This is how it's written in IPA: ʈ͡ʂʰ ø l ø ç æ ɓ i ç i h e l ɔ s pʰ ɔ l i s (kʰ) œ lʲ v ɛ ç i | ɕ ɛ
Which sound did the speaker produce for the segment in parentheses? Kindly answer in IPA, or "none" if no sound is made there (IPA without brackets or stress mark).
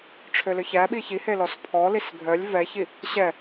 ɡʱ